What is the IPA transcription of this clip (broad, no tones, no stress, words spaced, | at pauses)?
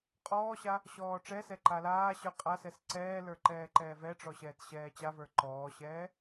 qʼɔːɕa | ɕɔːʈ͡ʂɛsɛ ǃalaːɕə˞ qʼasɛs ǀɛːlə˞ ǃɛːǃɛːvɛʈ͡ʂɔ ɕɛːtɕɛːt͡ɕavə˞ ǃɔːɕɛː